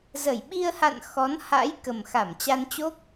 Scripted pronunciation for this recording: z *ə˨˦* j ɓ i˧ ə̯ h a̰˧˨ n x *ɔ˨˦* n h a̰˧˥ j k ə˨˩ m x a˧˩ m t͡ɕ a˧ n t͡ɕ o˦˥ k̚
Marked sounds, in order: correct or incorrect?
incorrect, correct

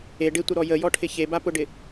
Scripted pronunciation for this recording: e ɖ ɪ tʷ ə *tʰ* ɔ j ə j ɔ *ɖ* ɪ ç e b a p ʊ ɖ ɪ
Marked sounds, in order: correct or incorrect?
incorrect, incorrect

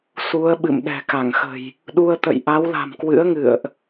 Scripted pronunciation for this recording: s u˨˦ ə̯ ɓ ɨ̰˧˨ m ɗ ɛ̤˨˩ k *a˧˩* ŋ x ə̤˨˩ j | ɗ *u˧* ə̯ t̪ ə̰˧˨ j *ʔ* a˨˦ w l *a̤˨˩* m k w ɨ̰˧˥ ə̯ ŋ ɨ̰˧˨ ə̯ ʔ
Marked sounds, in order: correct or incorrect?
correct, correct, correct, correct

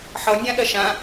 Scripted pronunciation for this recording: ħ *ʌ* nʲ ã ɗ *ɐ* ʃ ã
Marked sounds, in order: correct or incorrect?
correct, correct

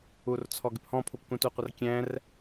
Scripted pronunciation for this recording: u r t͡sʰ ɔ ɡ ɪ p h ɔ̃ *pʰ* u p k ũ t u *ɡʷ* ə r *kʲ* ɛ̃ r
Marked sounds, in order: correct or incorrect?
correct, incorrect, correct

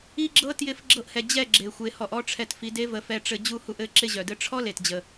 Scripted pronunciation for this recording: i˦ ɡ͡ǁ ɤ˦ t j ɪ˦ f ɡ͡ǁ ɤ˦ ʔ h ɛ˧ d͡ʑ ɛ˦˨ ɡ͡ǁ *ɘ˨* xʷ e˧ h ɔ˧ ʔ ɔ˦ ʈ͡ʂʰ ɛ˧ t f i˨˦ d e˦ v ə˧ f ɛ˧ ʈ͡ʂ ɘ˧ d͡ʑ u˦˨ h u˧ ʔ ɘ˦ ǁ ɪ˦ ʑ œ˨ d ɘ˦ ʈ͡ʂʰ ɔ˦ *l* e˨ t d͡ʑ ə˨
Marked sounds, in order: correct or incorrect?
incorrect, correct

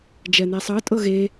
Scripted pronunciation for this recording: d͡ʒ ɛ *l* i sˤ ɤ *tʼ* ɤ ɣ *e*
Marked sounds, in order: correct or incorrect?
incorrect, correct, correct

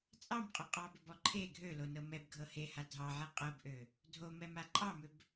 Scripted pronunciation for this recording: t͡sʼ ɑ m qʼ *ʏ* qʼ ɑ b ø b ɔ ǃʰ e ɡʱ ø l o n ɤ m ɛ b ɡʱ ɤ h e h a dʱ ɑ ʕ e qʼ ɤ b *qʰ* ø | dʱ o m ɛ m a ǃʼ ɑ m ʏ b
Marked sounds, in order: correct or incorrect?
correct, incorrect

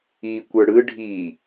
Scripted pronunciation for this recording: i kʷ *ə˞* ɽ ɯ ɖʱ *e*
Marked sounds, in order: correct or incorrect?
correct, incorrect

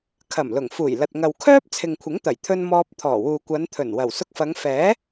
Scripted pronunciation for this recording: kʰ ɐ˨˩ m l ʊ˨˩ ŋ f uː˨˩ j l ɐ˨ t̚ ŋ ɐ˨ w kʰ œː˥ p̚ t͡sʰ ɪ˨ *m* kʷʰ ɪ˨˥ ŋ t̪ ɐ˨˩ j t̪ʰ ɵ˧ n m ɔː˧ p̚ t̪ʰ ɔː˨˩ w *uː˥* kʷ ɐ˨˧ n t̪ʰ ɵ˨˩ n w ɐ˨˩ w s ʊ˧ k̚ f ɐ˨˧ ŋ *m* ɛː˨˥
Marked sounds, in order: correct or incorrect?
incorrect, incorrect, incorrect

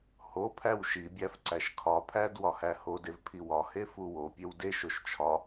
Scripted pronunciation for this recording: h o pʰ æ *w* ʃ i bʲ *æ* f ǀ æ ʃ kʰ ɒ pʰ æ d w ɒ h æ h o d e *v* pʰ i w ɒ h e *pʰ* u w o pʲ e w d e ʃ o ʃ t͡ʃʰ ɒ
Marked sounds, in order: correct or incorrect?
correct, correct, correct, incorrect

